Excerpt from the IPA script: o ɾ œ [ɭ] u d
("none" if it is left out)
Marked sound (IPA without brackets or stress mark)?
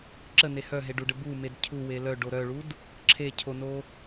ɭ